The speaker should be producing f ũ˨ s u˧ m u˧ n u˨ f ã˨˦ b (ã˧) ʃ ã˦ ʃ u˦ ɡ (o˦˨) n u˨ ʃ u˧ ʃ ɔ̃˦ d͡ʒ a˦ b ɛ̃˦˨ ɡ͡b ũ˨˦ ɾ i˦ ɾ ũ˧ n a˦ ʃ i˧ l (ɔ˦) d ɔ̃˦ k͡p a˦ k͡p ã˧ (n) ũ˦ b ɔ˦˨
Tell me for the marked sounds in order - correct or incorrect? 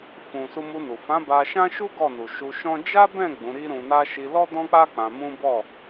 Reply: incorrect: a˧, incorrect: ɔ˦˨, correct, incorrect: m

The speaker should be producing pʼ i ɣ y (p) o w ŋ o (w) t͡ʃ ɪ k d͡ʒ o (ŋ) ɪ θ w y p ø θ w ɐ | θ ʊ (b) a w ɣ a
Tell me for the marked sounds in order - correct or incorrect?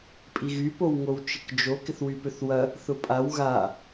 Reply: correct, correct, incorrect: k, incorrect: pʼ

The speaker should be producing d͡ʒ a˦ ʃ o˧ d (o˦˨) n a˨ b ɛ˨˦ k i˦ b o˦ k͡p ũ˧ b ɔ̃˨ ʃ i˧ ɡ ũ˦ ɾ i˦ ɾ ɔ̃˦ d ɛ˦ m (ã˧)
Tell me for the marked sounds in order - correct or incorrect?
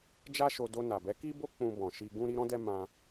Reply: incorrect: o˧, correct

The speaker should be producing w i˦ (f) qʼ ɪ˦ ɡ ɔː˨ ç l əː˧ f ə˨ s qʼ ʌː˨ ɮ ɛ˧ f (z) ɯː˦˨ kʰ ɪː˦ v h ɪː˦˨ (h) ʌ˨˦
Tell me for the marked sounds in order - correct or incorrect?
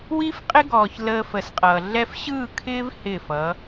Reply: correct, incorrect: ɕ, incorrect: f

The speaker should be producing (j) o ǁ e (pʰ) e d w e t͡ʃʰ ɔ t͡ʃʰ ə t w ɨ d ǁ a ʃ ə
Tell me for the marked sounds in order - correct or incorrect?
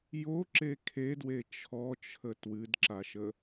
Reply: correct, incorrect: kʰ

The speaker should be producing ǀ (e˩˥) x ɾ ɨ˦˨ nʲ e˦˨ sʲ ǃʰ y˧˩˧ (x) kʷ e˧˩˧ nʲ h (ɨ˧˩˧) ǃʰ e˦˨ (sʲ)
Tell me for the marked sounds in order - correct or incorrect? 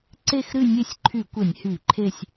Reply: incorrect: e˦˨, incorrect: none, incorrect: y˧˩˧, correct

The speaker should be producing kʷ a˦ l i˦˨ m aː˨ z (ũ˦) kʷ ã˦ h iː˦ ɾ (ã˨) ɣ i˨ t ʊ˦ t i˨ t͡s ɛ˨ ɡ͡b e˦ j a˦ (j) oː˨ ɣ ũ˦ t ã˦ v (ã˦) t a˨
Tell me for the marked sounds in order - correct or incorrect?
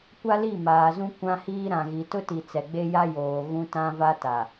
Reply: correct, correct, correct, incorrect: a˦

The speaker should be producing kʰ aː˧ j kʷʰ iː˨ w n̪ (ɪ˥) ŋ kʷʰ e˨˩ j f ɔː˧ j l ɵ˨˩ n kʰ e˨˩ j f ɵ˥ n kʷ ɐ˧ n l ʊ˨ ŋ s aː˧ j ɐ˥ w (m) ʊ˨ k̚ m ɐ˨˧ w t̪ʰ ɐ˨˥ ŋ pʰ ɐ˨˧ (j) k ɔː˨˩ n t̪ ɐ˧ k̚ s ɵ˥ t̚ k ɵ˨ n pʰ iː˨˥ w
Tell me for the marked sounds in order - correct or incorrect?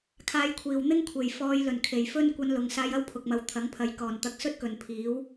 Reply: correct, incorrect: pʰ, correct

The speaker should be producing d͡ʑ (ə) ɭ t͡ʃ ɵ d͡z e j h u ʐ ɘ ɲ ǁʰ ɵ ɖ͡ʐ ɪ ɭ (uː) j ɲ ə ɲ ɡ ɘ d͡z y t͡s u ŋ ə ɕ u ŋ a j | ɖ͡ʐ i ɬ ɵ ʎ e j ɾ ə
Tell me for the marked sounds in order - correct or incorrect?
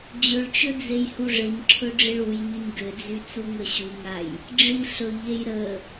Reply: incorrect: ɵ, incorrect: u

